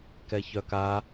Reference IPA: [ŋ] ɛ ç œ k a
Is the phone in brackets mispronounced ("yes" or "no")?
yes